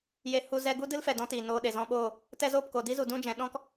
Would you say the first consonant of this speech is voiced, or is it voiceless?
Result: voiced